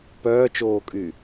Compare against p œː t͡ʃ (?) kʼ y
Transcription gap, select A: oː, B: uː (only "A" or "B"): A